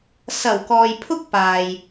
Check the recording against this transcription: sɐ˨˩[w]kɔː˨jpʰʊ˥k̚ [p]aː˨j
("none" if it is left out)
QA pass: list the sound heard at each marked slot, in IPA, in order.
w, p

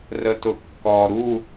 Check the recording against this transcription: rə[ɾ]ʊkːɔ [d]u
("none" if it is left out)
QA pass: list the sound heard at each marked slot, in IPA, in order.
t, ɾ

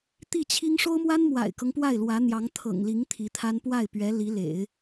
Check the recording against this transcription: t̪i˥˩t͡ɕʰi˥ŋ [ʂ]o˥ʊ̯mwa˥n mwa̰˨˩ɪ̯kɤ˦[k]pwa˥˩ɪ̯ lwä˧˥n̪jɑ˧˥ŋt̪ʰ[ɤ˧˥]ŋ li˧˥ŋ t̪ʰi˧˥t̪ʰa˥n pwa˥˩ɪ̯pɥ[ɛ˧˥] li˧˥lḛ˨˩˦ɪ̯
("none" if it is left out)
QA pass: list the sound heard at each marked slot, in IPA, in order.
ʂ, ŋ, ɤ̰˨˩, ɛ˧˥

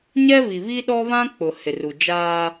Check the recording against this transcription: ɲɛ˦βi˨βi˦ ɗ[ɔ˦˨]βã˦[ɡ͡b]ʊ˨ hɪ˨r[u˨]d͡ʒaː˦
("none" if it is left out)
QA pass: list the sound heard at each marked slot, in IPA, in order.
ɔ˦, k͡p, u˨

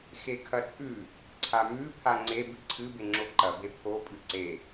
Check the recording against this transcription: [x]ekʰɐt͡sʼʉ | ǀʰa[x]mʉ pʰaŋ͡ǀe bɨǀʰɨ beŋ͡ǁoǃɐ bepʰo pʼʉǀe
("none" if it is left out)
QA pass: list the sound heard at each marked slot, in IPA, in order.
x, none

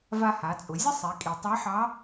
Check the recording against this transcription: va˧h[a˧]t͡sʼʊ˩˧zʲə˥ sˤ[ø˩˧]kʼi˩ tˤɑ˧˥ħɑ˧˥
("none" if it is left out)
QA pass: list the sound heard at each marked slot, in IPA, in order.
a˩˧, e˩˧

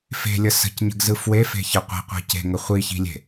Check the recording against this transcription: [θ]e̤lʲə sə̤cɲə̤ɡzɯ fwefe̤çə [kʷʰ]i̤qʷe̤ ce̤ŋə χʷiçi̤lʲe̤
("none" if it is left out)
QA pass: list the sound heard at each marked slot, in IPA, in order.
f, qʷ

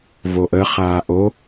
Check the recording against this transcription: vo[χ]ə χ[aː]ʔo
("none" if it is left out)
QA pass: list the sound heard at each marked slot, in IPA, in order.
ʔ, aː

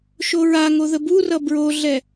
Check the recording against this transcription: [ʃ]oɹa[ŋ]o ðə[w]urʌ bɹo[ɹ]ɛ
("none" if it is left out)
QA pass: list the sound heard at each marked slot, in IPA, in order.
ʃ, ŋ, b, ɮ

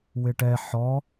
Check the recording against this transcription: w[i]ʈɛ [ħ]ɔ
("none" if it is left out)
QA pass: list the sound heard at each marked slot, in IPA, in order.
ɪ, ħ

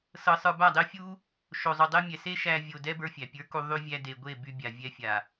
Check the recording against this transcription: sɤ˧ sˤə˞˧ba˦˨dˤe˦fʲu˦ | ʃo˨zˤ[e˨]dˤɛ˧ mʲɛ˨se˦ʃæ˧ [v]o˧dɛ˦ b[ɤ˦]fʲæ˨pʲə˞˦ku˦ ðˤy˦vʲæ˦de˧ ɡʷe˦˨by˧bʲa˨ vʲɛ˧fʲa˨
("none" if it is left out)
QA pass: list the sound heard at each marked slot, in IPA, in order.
y˨, vʲ, ə˞˦

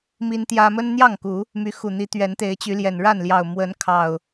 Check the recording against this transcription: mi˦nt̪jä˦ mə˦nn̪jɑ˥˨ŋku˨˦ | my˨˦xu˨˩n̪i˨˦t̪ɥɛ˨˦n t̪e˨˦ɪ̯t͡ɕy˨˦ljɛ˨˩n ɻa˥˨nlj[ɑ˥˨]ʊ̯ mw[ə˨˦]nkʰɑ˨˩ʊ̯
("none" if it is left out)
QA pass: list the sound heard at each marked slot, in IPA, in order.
ɑ˨˩, ə˨˦

